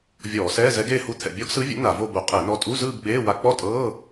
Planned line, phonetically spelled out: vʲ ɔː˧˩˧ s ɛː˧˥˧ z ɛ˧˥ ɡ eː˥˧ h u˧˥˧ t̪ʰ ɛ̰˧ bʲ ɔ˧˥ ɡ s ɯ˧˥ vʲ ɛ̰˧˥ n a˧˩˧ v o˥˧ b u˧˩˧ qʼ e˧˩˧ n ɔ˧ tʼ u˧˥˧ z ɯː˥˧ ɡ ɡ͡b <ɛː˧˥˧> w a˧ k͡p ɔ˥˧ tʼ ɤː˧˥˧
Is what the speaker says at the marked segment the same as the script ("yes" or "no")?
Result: no